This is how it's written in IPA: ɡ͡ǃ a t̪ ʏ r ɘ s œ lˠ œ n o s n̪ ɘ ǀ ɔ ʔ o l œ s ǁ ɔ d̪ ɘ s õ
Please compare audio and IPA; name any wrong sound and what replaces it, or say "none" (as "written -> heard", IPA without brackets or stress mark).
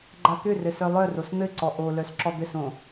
n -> r